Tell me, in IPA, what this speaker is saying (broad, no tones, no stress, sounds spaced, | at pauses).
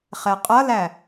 χ ɛ qʼ ʌ l æ